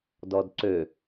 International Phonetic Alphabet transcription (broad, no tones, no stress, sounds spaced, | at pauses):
d ɔ d ǀ ø